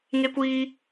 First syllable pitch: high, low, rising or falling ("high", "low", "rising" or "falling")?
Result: high